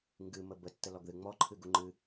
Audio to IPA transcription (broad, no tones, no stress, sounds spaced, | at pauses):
ŋ ɡ ɨ m ə b ə tː ə l ɔ ɡ ð ɨ ŋ͡m ɔ ǃʰ ɨ ɡ u ŋ͡ǃ ɨ